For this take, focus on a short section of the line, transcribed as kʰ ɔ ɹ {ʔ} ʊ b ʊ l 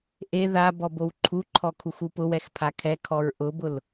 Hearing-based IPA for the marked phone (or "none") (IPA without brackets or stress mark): ʔ